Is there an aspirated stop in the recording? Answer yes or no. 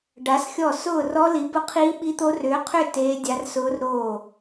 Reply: yes